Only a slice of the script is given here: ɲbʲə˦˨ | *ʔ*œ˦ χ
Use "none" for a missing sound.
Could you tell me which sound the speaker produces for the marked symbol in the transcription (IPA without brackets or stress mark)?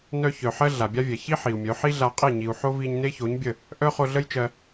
ʔ